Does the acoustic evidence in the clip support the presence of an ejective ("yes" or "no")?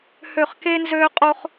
yes